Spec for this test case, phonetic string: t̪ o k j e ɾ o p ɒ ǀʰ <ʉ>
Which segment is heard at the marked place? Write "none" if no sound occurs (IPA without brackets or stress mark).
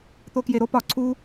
u